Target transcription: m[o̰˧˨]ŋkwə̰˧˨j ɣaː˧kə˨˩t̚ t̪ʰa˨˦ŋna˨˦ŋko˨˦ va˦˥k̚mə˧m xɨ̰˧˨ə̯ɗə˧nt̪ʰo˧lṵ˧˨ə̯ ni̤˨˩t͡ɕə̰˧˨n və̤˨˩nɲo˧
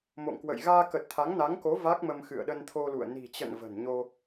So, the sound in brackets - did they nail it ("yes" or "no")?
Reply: yes